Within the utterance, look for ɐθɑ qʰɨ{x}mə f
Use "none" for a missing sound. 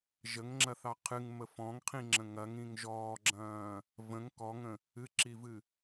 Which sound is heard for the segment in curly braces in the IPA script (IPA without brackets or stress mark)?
ŋ